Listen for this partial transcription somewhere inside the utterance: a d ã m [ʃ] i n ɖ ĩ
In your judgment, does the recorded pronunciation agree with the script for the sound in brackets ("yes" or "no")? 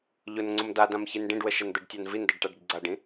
no